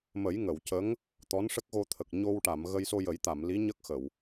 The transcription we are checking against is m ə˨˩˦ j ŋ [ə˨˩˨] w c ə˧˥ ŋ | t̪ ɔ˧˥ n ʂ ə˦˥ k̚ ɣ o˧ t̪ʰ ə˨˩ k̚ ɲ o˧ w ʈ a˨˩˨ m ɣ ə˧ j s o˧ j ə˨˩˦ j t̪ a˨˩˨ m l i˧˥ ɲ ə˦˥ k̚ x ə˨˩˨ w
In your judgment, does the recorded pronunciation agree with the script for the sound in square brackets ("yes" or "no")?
yes